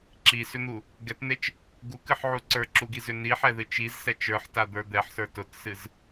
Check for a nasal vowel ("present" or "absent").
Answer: absent